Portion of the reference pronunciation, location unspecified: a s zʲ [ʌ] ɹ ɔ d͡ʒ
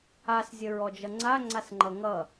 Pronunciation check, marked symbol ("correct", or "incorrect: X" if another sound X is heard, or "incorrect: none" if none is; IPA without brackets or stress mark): incorrect: ə